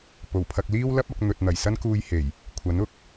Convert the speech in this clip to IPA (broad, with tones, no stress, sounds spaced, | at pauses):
p o˨˩ w pʰ ɐ˧ k̚ l iː˥ w l ɐ˥ p̚ ɐ˧ k̚ n̪ ɵ˨ t̚ n̪ ɐ˨˩ j s ɐ˥ n k uː˧ j h e˨˩ j | kʷʰ ɐ˨˥ n ʊ˨ k̚